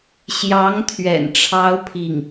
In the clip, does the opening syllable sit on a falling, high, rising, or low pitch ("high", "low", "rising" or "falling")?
rising